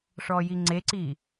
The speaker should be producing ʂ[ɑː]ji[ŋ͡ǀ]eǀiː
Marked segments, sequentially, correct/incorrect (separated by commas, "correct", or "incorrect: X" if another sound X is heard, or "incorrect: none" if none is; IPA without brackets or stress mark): incorrect: ɔː, correct